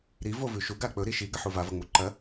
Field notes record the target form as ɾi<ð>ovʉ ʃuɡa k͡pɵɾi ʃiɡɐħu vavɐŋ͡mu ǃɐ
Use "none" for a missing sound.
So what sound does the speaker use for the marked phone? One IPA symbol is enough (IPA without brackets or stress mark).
v